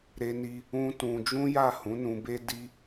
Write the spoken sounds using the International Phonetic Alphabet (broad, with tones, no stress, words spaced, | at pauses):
ɾe˧ni˧ | ũ˦tũ˧ d͡ʒũ˦ja˦˨ hũ˨˦nũ˧be˦ di˦